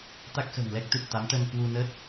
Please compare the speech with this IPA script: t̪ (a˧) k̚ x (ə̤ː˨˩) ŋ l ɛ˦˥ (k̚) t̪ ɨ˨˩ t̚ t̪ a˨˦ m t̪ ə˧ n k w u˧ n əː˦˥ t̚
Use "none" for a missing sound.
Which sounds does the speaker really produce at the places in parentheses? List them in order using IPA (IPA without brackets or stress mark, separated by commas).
a˦˥, ə̤ː˨˩, k̚